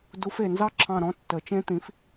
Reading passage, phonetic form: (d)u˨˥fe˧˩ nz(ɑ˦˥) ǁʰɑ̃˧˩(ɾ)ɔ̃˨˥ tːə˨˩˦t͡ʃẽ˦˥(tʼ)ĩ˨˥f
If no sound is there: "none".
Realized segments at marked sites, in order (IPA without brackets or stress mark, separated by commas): d, ɑ˦˥, ɾ, t̪